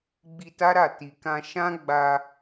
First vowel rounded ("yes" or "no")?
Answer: no